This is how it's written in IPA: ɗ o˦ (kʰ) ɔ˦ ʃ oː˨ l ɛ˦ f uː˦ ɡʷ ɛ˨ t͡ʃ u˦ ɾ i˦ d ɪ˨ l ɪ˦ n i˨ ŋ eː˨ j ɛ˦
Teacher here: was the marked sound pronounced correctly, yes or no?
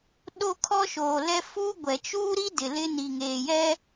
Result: yes